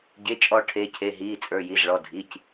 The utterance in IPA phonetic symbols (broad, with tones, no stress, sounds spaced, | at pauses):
ɟ e˩˧˩ t͡ʃʼ ɔ˨˩˦ ʈʰ e˩˧˩ cʰ e˩˧˩ ɦ iː˩˧˩ t͡sʼ ə˞˩˧˩ j i˩˧˩ z ɭ ɔ˩˧˩ dʱ i˩˧˩ c